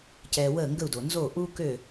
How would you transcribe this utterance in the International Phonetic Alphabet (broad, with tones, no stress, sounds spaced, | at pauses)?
c ɛː˧ w əː˥˩ ŋ ɡ ə˥˩ u̯ d o˩ n z oː˥˩ ʔ uː˥ k ø˥˩